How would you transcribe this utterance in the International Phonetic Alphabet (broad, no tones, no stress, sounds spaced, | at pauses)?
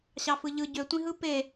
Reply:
ɕ ɑ f ɯ ʎ ɯ ɟ ø tʷ ĩ ɦ ɯ p e